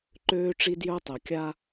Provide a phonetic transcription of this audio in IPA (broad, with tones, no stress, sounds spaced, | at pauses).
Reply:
ǃ øː˦ ʈ͡ʂ i˦ d j œ˦ tˤ œ˨ kʲ a˦